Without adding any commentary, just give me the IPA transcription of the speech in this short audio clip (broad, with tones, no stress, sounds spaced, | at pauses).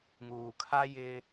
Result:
ŋ uː˨ kʰ a˦ j ɪ˦